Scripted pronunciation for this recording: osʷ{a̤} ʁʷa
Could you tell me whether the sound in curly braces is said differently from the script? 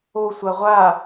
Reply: yes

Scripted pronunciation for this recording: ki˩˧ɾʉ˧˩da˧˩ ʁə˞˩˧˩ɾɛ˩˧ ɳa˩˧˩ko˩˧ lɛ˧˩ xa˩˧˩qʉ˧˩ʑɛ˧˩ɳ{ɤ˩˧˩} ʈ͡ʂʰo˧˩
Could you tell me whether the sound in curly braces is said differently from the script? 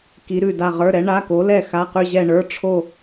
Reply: yes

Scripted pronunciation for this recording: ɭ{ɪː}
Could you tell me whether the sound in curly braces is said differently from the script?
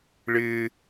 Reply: no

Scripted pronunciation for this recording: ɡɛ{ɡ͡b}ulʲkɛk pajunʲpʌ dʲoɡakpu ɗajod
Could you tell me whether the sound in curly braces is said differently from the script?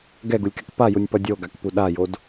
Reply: yes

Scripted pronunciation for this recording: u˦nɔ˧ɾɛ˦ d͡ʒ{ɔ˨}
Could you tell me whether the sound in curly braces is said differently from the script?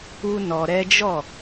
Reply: yes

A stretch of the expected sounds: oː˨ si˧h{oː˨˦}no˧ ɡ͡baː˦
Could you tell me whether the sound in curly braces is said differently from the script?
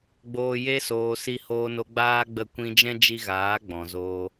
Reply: yes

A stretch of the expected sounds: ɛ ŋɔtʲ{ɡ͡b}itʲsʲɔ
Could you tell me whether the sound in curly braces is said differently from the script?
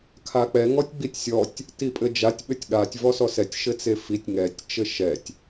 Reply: no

